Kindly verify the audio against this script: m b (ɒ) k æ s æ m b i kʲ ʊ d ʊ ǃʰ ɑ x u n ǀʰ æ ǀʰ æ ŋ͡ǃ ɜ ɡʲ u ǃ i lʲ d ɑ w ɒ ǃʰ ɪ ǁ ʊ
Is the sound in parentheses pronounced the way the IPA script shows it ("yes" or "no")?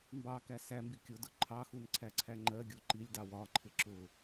no